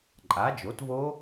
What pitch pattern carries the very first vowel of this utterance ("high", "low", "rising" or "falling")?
rising